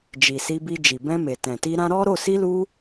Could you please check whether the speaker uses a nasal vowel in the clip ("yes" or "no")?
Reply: yes